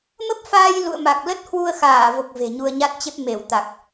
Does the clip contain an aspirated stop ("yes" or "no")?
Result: no